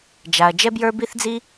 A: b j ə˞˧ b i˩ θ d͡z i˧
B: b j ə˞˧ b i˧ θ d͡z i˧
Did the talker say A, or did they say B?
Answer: B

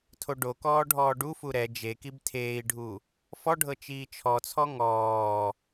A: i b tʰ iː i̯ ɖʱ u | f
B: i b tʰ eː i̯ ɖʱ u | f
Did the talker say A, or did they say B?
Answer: B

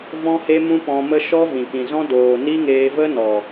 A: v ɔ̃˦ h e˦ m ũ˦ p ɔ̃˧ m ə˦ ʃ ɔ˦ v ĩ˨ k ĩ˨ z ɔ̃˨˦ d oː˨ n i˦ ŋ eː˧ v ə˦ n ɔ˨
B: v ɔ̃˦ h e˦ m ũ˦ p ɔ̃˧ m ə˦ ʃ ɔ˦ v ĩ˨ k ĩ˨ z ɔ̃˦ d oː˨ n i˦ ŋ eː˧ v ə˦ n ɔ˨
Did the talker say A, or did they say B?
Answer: B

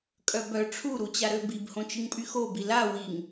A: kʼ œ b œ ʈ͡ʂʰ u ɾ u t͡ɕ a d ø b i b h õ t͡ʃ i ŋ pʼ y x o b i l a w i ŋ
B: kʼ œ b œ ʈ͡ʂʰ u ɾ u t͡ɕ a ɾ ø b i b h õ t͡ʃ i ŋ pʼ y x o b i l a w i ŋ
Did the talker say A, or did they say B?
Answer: B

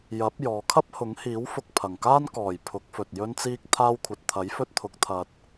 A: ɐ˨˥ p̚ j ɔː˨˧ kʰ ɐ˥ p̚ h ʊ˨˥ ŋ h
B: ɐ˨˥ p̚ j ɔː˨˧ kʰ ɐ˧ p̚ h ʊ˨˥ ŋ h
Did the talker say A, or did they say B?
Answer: A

